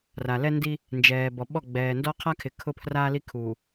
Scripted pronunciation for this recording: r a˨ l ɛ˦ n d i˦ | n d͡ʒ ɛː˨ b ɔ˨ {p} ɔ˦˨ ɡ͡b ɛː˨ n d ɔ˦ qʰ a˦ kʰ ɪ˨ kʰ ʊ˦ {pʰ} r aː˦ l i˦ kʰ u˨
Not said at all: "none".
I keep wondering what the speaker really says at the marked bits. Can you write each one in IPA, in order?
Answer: ɓ, pʰ

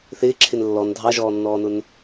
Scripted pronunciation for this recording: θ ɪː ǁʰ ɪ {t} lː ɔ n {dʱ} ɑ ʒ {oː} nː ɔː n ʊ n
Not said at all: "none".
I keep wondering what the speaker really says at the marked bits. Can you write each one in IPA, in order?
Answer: n, dʱ, ɔː

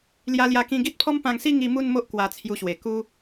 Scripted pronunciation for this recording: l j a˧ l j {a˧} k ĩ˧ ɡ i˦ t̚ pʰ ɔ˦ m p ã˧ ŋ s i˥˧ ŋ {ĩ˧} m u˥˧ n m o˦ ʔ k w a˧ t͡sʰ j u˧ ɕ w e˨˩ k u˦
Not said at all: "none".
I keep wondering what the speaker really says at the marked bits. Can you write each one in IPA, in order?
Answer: a˧, i˧

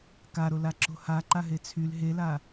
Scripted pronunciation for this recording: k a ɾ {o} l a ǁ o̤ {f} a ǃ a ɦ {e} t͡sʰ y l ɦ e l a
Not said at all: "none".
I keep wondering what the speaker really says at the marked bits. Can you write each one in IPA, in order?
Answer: o, h, e

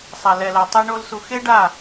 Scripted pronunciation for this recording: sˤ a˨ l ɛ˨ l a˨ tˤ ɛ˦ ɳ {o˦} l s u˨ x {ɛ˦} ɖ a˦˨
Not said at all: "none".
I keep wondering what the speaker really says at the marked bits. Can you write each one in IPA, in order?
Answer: o˦, e˦

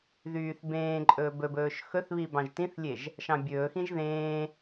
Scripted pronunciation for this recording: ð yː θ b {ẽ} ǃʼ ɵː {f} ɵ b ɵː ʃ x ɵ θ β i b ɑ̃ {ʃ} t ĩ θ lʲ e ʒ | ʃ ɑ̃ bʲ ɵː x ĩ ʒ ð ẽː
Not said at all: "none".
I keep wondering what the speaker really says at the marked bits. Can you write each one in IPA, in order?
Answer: ẽː, b, ʒ

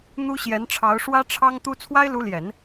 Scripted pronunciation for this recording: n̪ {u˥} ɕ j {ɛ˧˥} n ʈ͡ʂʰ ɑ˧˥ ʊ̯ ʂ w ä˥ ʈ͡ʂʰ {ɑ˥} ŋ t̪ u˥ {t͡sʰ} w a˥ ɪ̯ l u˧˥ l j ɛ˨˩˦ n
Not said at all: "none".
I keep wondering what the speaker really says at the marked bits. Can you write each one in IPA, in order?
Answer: u˥, ɛ˧˥, ɑ˥, t͡sʰ

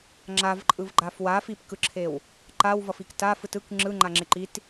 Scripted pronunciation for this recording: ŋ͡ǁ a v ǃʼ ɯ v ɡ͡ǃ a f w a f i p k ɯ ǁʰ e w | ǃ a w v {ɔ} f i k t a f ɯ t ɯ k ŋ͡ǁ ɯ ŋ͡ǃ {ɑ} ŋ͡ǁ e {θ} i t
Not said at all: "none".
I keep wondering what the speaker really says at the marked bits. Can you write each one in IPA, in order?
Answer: ʌ, a, ǃ

